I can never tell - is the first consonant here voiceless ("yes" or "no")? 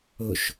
yes